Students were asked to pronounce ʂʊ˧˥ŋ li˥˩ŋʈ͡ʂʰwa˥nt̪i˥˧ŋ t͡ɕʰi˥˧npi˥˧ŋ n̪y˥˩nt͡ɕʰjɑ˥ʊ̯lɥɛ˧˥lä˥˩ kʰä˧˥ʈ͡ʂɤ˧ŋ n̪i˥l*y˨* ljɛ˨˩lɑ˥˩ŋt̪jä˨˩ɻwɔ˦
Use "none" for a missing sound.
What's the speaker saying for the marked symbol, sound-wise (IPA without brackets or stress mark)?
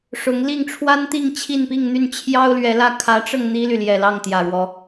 y˨